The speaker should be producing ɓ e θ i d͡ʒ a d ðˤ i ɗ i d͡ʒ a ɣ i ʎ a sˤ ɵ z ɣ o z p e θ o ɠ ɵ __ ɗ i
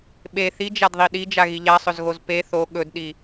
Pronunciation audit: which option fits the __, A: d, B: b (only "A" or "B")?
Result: A